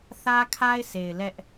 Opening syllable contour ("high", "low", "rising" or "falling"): high